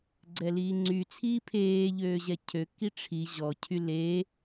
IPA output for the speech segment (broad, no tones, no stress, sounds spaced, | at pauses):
ɡ͡ǀ ɛ l iː ŋ͡ǀ y t͡sʰ iː pʰ eː ʎ øː ʑ ɛ cʰ ø k i ʈ͡ʂʰ i ʑ ɔ cʰ y l e